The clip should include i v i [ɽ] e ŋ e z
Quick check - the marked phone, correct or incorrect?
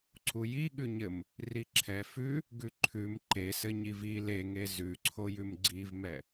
incorrect